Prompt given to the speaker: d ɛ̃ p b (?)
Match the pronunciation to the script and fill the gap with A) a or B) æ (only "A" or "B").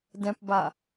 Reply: A